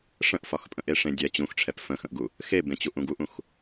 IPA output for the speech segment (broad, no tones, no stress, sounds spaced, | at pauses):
ʂ ə̃ ʔ f ɒ x pʼ ə̃ ʔ e ʂ ẽ dʲ ɛ t͡ɕ ũ x ʈ͡ʂʰ ɛ p f ə̃ x ə̃ ʔ ɡ u | x e b ẽ t͡ɕ u ʔ ũ ɡ u ʔ ũ x